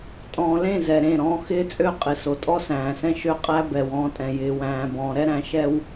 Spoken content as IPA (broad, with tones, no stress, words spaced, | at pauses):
tʼɔ̃ː˨lẽ˦˨ zɛ˨ɾẽ˦˨ɾɔ̃ː˦ xɪː˦t͡sʼø˦ qʼɪ˨ so˨tʼɔ˦sæ̃ː˨sɛ̃˦ ʃø˦qʼæ˦bɛ˨w ɔ̃ː˦tʼɛ̃˨ jɪː˨ wæ̃ː˨bɔ̃ː˨ ɾɛ˦ɾæ̃˨ ʃɛ˦w